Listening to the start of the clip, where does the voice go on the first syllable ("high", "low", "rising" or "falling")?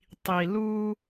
low